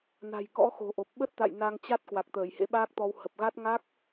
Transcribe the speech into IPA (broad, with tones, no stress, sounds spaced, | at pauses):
n a̤˨˩ j k ɔ̰˧˥ x o̤˨˩ ʔ o˨˩ p̚ ɓ ə˦˥ t̚ t̪ a̰˧˨ j n a˧ ŋ t͡ɕ a˦˥ t̚ k w a˨˩ k̚ t̪ əː˧˩ j h ḛ˧˥ ɓ aː˦˥ k̚ t̪ ɔ˧ w h ə˨˩ p̚ ɣ a˦˥ t̚ ŋ a˦˥ k̚